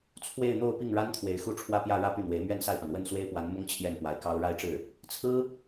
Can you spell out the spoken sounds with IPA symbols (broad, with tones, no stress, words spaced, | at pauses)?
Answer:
t͡sʰwe˥˧ɪ̯n̪o˥˧ʊ̯ pi˥˩ŋɻa˥nt̪ʰwe˨˩ɪ̯ xu˥˧ʈ͡ʂʰwä˥˧pjä˥˧ ɻä˥˧py˥˩n̪we˧˥ɪ̯ mɥɛ˥˧nsa˥˩ɪ̯pa˩n wə˥˩nswe˥ɪ̯pwa˧˥n mʊ˥ŋ t͡ɕʰjɛ˥˩npwa˧˥ɪ̯kɑ˥ʊ̯ ɻa˥˧ɪ̯ʈ͡ʂɻ̩˥˩ | t͡sʰɹ̩˥